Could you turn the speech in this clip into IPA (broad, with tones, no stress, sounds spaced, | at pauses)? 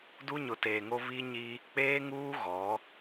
d u˦ ɲ ʊ˨ t eː˨ ŋ o˦ β i˦ ɲ i˦ | k͡p eː˦ ŋ uː˦ ɣ ɔ˨˦